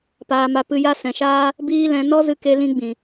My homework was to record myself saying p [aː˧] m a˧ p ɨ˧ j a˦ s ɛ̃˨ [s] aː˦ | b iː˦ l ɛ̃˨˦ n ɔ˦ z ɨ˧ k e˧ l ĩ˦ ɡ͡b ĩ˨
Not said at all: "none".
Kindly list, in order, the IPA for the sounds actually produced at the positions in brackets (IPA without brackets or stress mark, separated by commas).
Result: aː˧, ʃ